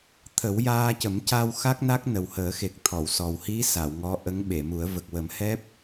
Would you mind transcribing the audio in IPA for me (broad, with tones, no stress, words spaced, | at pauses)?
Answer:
t̪ʰə˨˩˦wjaː˧cə˨˩˦m ca˧w xa˦˥k̚na˦˥k̚ nə˨˩whəː˨˩˦xe˨˩k̚ t̪ʰɔ˨˩˨wsɔ˨˩w hi˧˥ sa˨˩˨wŋɔ˧˥ʔə˧˥ŋ ɓe˨˩˨mu˨˩˦ə̯və˨˩k̚ wə˨˩˦mhɛ˦˥p̚